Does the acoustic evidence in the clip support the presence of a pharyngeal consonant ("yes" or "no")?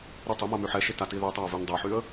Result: yes